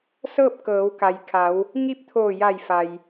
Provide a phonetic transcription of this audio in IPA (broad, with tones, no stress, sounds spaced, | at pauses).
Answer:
s ɤː˥˨ p̚ k ɤː˩˧ w k a˩ j kʰ a˩˧ w | ŋ i˥˨ p̚ t̪ʰ oː˧˩ j a˧˩ j f a˩ j